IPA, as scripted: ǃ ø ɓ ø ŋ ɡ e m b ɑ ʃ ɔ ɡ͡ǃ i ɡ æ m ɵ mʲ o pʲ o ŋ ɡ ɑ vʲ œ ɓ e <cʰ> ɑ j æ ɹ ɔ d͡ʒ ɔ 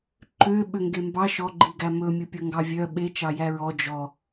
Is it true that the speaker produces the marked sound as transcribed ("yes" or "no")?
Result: no